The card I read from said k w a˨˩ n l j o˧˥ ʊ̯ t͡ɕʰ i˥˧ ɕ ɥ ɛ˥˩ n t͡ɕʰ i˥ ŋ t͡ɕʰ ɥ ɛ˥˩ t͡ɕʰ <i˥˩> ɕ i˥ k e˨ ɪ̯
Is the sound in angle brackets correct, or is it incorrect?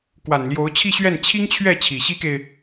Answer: incorrect